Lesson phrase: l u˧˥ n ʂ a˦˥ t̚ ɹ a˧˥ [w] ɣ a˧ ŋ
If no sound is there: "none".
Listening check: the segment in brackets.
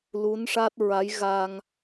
j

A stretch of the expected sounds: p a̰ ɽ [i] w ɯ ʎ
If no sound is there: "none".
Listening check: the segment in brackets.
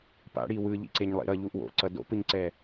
i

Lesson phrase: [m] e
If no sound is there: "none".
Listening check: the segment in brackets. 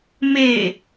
m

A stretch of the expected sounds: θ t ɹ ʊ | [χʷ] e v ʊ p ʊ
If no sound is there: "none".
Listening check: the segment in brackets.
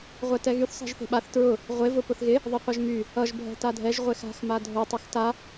ʁʷ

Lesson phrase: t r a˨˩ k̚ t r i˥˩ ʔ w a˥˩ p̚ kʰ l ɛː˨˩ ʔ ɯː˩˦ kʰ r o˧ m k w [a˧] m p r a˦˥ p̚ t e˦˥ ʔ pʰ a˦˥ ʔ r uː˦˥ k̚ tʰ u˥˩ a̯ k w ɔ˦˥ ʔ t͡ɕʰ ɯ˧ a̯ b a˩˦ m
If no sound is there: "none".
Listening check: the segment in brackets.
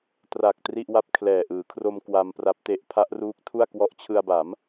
a˧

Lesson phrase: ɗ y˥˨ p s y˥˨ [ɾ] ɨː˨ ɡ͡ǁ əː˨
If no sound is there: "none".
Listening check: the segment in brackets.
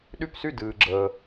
d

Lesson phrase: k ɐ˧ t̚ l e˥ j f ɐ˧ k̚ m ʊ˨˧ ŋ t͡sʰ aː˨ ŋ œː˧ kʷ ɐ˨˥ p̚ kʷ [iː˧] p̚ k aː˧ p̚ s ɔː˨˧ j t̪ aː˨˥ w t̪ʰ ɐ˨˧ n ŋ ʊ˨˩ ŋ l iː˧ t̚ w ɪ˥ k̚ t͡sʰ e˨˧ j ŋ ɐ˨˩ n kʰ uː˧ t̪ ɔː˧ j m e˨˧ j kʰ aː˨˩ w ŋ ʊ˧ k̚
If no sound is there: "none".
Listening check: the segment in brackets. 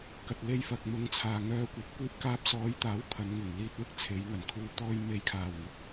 iː˧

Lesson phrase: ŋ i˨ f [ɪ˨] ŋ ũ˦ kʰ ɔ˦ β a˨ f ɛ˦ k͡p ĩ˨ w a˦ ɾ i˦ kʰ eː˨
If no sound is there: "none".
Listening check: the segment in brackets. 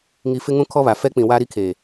ɪ˦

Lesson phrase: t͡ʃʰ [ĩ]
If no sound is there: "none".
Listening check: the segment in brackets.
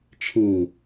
ĩ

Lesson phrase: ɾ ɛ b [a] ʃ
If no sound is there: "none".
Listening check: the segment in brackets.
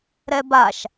a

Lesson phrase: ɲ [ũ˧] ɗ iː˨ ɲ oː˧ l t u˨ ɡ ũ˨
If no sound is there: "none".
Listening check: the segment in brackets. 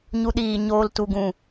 u˧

